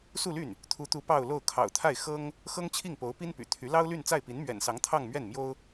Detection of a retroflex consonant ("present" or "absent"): absent